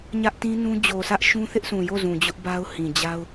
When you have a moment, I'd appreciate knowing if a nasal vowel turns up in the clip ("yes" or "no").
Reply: yes